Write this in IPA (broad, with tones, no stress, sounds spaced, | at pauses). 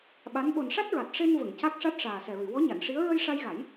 ɓ a˧˥ n ɓ o˨˩ n ʂ a˦˥ t̚ ɹ a˨˩ t̚ ʂ e˧ n v ə˨˩˨ ŋ c a˦˥ k̚ ʂ a˦˥ t̚ ʂ aː˨˩ s ɛ˨˩ ɹ ɨ˨˩˨ w ɔ˧˥ ɲ a˨˩˨ n ʂ i˧˥ ə̯ ɹ ə˧ j ʂ a˧ j ɣ a˨˩˦ j